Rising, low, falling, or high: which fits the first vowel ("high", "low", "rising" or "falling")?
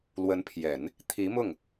rising